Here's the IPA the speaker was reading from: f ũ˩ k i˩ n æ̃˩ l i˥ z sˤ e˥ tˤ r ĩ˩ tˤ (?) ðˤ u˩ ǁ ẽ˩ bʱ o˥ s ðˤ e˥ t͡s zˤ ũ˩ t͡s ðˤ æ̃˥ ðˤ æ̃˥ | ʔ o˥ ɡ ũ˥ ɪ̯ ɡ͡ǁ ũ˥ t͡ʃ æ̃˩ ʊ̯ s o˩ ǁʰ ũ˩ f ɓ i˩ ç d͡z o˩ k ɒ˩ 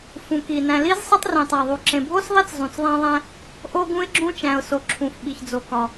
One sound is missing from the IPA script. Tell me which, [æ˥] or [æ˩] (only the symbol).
æ˩